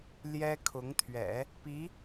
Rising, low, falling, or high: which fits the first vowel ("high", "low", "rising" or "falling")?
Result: high